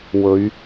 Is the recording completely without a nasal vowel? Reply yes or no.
yes